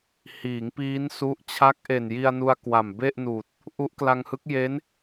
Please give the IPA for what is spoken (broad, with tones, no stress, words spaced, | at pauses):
hiː˩˦ŋ piː˦˥nsu˦˥ʔ t͡ɕʰa˦˥k̚ʔe˨˩nji˧a̯nu˧a̯ kwa˨˩mbe˥˩ʔnuː˨˩t̚ | ʔu˦˥ʔkla˧ŋhɯ˦˥k̚ je˦˥n